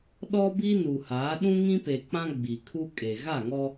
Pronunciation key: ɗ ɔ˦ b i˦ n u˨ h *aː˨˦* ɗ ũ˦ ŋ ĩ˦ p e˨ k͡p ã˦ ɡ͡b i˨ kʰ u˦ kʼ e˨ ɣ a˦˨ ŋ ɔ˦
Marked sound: correct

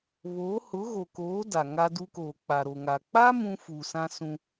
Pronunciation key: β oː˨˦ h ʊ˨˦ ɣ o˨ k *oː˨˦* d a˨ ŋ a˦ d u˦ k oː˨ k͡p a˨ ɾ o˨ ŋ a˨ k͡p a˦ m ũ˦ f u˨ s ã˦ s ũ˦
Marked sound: correct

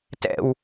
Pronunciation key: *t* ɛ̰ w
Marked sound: correct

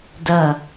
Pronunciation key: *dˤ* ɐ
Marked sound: incorrect: d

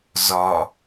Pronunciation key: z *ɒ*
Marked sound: correct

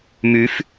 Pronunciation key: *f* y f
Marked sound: incorrect: m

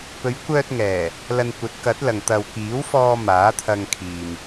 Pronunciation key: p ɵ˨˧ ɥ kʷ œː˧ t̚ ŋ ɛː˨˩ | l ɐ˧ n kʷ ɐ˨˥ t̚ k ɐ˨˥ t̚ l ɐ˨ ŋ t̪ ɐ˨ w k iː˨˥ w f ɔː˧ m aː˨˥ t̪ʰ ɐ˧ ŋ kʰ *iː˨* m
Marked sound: correct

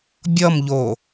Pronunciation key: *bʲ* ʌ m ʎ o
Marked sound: correct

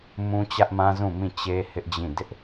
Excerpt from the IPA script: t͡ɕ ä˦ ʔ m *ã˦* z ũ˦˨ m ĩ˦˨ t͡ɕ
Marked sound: correct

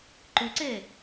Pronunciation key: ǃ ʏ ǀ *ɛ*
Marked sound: correct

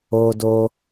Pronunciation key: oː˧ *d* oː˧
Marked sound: correct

